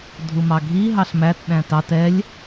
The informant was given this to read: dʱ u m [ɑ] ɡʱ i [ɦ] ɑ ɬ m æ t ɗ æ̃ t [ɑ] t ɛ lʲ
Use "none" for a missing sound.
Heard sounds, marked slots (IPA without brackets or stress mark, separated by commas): ɑ, ɦ, ɑ